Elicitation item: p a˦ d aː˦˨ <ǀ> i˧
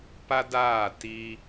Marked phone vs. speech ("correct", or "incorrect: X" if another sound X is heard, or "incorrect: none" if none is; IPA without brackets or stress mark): incorrect: t